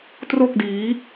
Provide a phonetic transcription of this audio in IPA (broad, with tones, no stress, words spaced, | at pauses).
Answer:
tro˥˩k̚diː˦˥